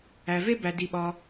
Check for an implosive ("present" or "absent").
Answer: present